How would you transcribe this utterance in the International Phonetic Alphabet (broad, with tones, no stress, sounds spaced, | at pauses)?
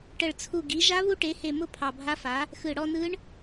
ʈ ə˧˩ ɭ t͡sʰ u˧˩ ɡ i˩˥ ʒ a˦˥ β u˦˥ ʈ e˩˥ h e˧˩ m ʊ˥˧ pʰ ɑ˧˩ bʱ a˦˥ f a˩˥ | x ɯ˧˩ ɽ ɔ˥˧ n ɯ˦˥ ɳ